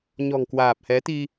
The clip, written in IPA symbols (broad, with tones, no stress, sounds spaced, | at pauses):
ɲ ɔ̤˨˩ ŋ k w aː˨˩ p̚ h ɛ˨˦ t̪ i˧